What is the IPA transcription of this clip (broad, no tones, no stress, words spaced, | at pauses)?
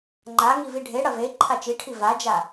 ŋ͡ǃa ŋiviɖʱe ɽɐve ǃʰat͡ʃiʈʰi vad͡ʒa